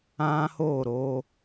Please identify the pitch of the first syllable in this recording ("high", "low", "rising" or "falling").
high